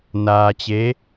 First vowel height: low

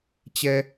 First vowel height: mid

